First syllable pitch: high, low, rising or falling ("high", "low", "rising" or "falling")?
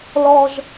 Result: high